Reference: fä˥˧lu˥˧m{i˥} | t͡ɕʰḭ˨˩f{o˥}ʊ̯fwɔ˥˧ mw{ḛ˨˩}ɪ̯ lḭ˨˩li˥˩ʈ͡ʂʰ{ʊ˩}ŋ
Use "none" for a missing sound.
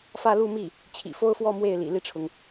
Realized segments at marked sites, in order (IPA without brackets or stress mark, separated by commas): i˥˩, o˥, e˥˩, ʊ˩